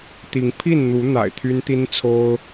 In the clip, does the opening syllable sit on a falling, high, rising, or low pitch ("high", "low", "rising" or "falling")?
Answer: rising